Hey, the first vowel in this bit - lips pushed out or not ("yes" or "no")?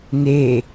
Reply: no